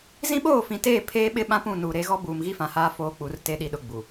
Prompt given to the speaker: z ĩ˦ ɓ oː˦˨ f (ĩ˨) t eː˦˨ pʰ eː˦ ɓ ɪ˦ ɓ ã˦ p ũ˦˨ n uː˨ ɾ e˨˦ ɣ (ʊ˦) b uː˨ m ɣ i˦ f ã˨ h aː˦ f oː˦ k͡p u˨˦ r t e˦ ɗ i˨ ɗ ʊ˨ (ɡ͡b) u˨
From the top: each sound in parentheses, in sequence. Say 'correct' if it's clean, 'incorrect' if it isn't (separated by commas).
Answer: correct, incorrect, correct